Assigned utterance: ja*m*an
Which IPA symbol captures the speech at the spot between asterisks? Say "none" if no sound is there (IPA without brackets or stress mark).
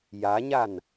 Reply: ɲ